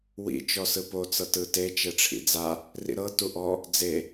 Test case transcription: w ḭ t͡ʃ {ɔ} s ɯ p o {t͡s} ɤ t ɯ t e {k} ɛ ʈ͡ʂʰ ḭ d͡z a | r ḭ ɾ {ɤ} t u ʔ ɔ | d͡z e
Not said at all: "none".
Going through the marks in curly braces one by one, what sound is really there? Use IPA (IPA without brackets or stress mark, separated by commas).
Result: ɔ, t͡s, t͡ʃ, ɤ